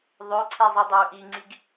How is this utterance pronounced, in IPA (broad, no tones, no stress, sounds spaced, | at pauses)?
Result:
ðˤ ø ǀʰ ɛ zˤ i dˤ e u̯ ʔ i ŋ͡ǀ i ɡ